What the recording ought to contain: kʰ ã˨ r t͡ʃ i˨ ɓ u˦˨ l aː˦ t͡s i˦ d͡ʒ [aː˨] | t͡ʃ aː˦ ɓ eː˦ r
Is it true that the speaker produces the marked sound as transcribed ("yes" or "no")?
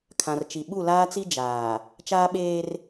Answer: yes